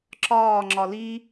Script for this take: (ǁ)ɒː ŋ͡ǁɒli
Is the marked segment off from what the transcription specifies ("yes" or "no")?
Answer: no